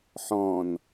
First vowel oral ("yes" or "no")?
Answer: no